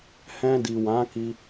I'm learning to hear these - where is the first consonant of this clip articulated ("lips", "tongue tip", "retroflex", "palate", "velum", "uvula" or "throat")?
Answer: throat